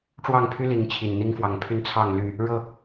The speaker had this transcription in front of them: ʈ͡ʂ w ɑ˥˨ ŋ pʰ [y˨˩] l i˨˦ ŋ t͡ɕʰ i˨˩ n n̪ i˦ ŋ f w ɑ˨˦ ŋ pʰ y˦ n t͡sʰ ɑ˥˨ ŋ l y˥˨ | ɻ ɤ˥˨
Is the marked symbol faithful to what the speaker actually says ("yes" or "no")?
no